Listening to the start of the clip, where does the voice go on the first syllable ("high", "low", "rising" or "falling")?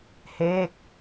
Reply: falling